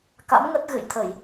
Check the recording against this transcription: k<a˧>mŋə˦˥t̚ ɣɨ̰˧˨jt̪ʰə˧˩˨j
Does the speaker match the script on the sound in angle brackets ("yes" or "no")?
no